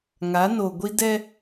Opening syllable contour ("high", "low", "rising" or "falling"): rising